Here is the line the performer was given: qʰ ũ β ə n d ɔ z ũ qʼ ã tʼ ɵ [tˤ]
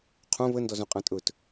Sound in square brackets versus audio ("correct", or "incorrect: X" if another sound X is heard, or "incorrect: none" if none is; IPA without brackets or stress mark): incorrect: t